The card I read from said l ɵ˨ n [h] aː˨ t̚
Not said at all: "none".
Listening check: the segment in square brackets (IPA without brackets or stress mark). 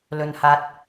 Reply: h